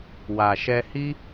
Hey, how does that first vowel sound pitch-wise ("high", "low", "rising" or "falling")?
low